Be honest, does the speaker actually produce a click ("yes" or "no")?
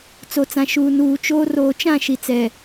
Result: no